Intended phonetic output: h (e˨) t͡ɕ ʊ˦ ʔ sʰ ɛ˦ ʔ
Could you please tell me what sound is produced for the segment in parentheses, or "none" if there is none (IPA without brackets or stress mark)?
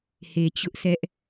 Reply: e˨